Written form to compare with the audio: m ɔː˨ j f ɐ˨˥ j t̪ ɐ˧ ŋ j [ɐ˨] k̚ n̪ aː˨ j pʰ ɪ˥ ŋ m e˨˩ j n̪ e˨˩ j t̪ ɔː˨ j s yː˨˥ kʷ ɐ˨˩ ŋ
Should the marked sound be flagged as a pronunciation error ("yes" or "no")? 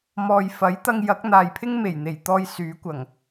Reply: yes